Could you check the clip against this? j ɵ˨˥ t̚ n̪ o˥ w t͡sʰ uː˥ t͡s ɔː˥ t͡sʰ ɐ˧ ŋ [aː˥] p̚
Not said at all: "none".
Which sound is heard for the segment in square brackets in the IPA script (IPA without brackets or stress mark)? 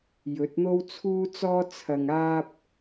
aː˥